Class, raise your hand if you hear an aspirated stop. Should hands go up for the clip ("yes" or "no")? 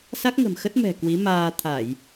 yes